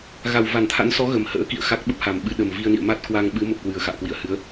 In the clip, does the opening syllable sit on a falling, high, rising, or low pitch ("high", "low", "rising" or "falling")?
low